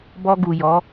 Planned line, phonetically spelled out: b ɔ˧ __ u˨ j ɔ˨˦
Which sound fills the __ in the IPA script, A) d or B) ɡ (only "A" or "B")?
B